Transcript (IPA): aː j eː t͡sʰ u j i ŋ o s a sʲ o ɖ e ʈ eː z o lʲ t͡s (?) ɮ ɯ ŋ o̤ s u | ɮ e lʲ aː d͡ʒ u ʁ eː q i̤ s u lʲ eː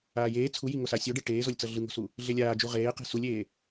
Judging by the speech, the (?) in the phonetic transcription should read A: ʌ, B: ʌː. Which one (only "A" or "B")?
A